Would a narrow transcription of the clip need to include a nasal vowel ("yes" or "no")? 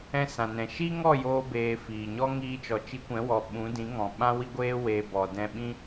yes